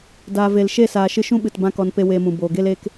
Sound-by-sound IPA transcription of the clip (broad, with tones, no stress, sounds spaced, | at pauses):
d aː˨ v e˨ l ʃ e˦˨ s aː˨ ʃ ɨ˧ ʃ ũ˦ ɓ ɨ˨ t b ã˦ k ɔ˧ n p e˦ w eː˧ m ũ˨ b oː˨ ɡ e˦ l eː˦ k